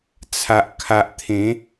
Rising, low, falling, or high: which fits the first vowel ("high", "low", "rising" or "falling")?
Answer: low